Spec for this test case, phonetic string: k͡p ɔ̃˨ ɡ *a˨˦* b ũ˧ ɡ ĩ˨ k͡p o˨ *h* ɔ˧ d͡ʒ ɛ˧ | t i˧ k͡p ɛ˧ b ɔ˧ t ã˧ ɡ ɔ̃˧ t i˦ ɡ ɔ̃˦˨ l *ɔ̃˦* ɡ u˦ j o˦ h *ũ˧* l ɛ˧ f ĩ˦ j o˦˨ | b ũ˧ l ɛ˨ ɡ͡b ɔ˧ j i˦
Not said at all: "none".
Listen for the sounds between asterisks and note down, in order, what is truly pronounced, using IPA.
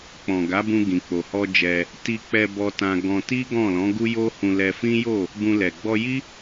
a˨˦, h, ɔ̃˨˦, ũ˧

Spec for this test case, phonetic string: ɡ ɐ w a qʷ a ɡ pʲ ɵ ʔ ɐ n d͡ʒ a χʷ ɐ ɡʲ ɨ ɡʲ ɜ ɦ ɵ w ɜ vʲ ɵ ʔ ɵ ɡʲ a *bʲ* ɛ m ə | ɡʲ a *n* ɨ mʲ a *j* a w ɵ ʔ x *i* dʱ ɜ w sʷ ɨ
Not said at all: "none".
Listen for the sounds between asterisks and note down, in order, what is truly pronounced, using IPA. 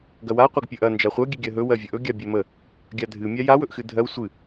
bʲ, dʱ, j, ɨ

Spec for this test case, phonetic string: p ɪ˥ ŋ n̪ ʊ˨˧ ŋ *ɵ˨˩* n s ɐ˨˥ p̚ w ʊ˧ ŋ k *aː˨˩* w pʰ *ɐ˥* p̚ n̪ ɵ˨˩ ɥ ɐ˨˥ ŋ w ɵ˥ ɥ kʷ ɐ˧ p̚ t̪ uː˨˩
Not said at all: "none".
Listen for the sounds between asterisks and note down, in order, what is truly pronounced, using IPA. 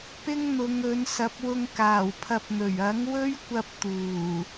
ɵ˨˧, aː˨˩, ɐ˧

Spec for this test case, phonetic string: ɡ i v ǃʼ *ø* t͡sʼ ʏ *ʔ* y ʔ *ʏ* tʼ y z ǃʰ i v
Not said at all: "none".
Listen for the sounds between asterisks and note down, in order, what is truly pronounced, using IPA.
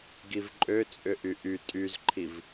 ø, ʔ, y

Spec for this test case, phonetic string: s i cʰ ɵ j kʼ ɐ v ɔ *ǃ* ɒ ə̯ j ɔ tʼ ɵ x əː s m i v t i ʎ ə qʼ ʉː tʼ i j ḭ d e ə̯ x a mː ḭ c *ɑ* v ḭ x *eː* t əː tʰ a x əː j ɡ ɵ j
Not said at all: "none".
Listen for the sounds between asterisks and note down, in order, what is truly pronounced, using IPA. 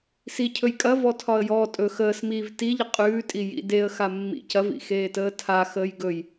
tʰ, ɐ, eː

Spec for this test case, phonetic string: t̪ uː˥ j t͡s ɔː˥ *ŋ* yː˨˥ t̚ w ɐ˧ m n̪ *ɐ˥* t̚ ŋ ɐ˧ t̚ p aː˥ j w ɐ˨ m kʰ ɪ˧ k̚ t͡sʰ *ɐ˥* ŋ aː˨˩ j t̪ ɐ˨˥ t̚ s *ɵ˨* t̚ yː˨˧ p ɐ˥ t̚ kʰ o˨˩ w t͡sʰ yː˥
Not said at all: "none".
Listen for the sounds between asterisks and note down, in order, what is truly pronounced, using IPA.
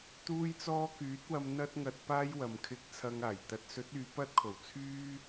k, ɐ˥, ɐ˧, ɵ˨˥

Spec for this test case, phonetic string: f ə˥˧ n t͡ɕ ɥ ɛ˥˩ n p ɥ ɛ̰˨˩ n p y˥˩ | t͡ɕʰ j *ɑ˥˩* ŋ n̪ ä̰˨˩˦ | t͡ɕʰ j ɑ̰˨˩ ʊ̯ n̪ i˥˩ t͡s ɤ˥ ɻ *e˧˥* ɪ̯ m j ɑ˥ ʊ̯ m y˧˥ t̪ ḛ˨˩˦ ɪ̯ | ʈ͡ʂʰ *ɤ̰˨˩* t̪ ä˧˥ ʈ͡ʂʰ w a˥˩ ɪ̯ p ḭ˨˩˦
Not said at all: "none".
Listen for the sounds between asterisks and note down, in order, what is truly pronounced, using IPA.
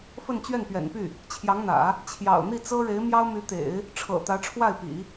ɑ˧˥, e˧˥, ɤ̰˨˩

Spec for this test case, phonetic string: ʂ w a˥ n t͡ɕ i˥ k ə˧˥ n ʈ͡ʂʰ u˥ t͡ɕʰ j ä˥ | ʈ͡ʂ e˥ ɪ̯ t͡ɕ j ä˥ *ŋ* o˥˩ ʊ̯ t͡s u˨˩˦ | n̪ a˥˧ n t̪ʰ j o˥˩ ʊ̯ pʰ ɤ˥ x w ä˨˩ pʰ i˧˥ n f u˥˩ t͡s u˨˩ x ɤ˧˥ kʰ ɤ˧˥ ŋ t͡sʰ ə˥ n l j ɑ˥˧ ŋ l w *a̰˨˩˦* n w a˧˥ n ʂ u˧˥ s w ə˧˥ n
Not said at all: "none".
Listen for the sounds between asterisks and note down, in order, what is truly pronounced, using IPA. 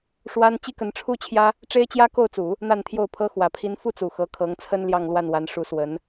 k, a˥˩

